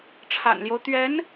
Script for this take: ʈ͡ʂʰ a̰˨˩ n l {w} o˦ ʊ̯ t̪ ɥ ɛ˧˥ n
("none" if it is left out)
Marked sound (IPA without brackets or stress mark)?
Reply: j